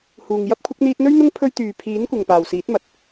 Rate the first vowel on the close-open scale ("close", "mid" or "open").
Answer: close